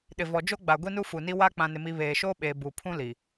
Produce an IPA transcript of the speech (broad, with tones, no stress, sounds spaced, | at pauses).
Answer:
ɗ ɪ˨ v ɔ˨ d͡ʒ o˦ ɡ͡b a˨ ɡʷ i˦ n u˦ f u˨ n i˦ w a˦ k͡p ã˦ n ɪ˦ m i˦ β eː˨ ʃ oː˦ ɓ eː˨ b u˨ pʰ ũ˦ l i˨